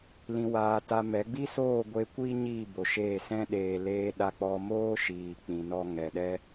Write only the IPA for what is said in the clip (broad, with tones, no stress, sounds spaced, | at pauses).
l ĩ˨ w aː˨ t a˧ m ɛ˨˦ ɡ͡b i˦ s oː˦˨ ɡʷ e˧ kʷ iː˦ ɲ i˦˨ b o˨ ʃ eː˦˨ s ɛ̃˦ ɗ eː˧ l eː˧ ɗ a˧ k͡p ɔ˧ m oː˦ ʃ iː˨ k͡p ĩ˧ n ɔ˦ ŋ ɛ˧ ɗ ɛ˦